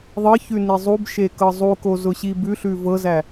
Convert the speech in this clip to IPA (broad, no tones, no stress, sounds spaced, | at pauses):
ðˤ ɤ ç ʉ n i zˤ u b ʃ e k ɤ zˤ u k o z ʊ ɕ i b ʉ ɬ ʉ v ɤ z æ